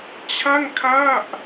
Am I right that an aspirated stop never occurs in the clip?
no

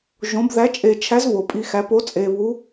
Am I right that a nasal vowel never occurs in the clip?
no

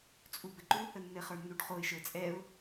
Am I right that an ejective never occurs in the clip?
no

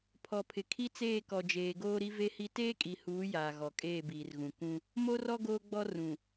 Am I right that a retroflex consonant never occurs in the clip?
yes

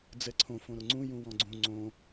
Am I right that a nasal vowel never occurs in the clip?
no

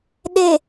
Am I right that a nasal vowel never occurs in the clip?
yes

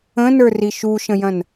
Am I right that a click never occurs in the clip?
yes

